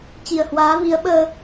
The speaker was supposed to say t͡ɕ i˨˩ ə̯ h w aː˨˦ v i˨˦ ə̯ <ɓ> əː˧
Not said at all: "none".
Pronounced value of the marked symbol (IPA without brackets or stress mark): ɓ